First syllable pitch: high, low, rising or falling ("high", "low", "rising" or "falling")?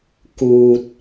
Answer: low